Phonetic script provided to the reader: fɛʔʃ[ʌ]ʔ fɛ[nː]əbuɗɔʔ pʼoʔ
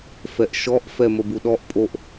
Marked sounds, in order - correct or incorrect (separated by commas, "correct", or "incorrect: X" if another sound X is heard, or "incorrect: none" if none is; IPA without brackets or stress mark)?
incorrect: ɔ, incorrect: m